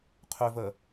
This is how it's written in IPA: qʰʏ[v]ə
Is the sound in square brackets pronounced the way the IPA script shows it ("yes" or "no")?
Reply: yes